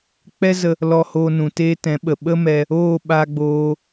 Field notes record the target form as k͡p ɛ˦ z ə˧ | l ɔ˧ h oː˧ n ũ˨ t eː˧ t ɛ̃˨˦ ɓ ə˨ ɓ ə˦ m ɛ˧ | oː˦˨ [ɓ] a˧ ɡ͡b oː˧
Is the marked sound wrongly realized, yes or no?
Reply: no